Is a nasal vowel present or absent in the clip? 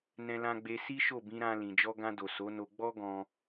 present